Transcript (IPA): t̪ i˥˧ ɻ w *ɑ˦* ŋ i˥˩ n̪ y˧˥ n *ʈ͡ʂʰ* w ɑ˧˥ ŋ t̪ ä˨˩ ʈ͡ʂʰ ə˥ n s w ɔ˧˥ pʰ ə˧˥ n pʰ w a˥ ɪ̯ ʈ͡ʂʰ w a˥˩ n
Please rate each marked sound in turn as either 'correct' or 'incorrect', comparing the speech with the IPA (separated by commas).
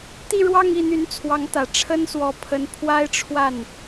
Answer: incorrect, incorrect